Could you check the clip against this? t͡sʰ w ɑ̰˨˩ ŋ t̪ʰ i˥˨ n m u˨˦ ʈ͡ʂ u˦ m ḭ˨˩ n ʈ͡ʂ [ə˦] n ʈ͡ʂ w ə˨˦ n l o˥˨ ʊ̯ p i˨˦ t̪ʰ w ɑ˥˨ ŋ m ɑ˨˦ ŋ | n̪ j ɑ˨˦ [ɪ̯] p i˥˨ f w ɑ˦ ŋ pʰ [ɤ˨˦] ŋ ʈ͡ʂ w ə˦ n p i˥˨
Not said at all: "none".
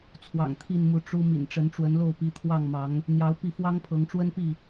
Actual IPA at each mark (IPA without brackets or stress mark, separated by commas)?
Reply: ə˨˦, ʊ̯, ɤ˨˦